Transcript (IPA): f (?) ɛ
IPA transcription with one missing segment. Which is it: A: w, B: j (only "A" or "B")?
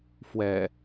A